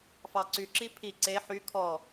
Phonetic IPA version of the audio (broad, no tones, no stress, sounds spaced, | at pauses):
f ɑ ǀ y ǁ i pʰ i ǀ e ħ y kʰ ɔ